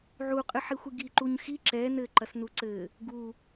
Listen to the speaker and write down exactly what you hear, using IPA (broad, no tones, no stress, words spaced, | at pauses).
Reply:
ʕuqʼɨħixʷɨ ɡiǃuɲxi ǁɛ nɘǃɐs nuǀɘ | ɡu